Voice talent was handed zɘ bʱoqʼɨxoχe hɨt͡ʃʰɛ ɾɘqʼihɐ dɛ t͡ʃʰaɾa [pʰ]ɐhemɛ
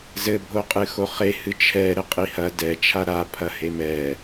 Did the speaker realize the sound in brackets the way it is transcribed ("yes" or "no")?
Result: yes